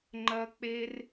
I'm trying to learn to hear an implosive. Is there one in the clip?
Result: no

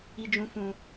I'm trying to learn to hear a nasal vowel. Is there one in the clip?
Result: yes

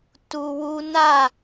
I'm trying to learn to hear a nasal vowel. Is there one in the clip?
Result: no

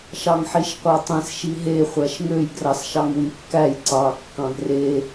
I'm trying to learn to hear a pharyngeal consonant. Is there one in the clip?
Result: yes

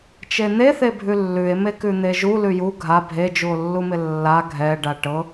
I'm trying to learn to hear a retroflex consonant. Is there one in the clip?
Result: yes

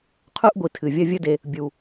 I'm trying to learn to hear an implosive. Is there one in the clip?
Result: no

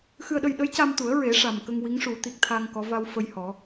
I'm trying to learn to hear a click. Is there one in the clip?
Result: no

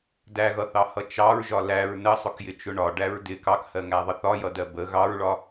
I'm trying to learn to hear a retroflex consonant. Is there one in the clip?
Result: yes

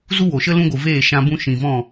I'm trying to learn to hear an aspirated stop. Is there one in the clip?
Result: no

